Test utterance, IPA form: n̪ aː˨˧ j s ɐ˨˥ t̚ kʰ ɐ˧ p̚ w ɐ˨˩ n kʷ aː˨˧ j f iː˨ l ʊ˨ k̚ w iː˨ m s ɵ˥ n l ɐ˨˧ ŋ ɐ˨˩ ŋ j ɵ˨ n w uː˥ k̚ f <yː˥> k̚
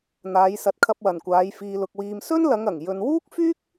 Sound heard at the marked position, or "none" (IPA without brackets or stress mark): yː˥